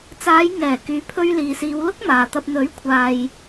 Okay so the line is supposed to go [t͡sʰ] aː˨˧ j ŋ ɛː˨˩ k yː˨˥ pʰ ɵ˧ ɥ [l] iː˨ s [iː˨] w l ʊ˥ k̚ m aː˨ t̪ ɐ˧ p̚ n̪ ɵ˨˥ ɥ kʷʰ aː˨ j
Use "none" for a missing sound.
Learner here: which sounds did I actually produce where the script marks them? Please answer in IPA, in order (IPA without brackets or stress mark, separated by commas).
t͡s, l, iː˨˧